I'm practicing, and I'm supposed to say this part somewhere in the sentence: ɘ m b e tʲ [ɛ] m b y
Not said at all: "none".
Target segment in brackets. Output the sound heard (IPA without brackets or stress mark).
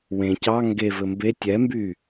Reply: ɛ